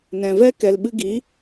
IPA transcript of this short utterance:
nɛ̃˨vɛ˦ kɛ˨lɓɨ˧ɡi˨˦

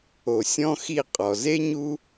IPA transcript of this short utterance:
o˨sʲɔ̃˦xi˦˨qʼɔ˨ ze˦ɲu˦

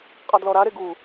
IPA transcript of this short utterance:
qʼɑdlɔɾaɾe ɡu

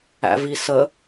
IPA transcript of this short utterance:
æ̰visə

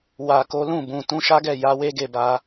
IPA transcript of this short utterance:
wa˨ko˨˦lũ˦˨bũ˨ tũ˧ʃa˦ɡɛ˦˨ja˨˦ we˦ɡe˦˨ba˧

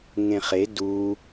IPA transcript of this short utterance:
ŋẽχe du

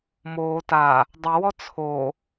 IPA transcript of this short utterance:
moː ta | dˤəwɔ t͡sʰo

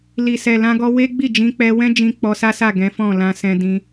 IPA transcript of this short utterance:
li˨sɛ˨ lã˧ɡɔ˧ we˦ɡ͡bi˦˨ d͡ʒĩ˧k͡pɛ˧wɛ̃˦d͡ʒĩ˧ k͡pɔ˧sa˦sa˦˨ ɡɛ̃˨˦fɔ̃˦˨lã˧ sɛ̃˧dĩ˧

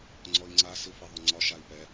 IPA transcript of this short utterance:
ŋ͡ǀɔi̯ŋ͡ǀa sifiðˤʊŋ͡ǀɒʃ ai̯pɛ

